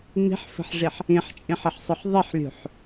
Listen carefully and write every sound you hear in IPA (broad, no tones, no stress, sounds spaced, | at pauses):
ŋ͡m i̤ ħ f ə̤ ħ ʐ i ħ | ĩ ħ t͡ʃʼ ĩ ħ ə ħ sˤ ʊ ħ ðˤ ɪ ħ lʲ ṳ ħ